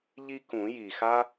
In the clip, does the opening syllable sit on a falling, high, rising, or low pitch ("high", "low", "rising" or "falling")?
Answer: high